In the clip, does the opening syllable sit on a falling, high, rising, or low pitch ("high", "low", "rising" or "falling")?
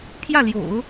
falling